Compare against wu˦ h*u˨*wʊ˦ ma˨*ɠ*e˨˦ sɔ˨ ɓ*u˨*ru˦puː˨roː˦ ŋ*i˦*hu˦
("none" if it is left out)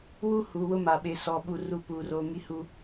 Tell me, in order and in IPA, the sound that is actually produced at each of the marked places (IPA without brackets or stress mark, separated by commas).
u˨, ɓ, u˦, i˦